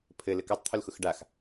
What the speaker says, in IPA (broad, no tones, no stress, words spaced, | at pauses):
pʰɘlɘ katˤt̪ʰʊlxʊx ɖax